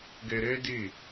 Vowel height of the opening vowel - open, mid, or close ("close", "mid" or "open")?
mid